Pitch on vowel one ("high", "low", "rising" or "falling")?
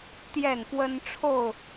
falling